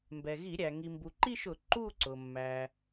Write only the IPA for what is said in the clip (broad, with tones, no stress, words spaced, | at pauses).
mbɛ˩ɣi˧˩˧ɾʲæ˩ ŋi˩mbu˩ǃi˥˧ʃʊ˧˩˧ ǃu˥˧ǀʊ˩ mːæ˩